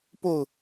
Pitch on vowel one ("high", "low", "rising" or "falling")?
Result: falling